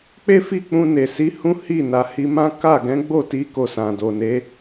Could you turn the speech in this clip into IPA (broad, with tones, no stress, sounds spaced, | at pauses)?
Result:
k͡p e˦ f i˦˨ k͡p ũ˧ n e˨ s i˨˦ h ũ˦ h i˦˨ n a˨ h i˧ m ã˦ k a˦˨ ɡ ɛ̃˨˦ ɡ͡b o˦˨ t i˨˦ k o˧ s ã˨ d o˨ n e˨˦